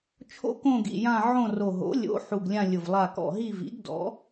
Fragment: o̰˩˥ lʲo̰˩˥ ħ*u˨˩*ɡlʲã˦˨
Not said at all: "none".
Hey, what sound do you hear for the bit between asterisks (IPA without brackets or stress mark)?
u˨˩